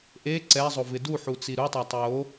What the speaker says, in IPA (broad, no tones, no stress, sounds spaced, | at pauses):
ʔ e ǀ ɛ zˤ o v ɪ d u ħ u t͡s i ɾ u tˤ a tˤ j o